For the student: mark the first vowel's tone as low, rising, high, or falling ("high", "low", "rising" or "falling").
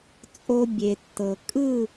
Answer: high